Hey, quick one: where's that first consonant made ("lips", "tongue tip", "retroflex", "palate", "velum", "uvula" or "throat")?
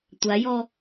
tongue tip